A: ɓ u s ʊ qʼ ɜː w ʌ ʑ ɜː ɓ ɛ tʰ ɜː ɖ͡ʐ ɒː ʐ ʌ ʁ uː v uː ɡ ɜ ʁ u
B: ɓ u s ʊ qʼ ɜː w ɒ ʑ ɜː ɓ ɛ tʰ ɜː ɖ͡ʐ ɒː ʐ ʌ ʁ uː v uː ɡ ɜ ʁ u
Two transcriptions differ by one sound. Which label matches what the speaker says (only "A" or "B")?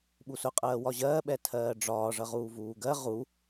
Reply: B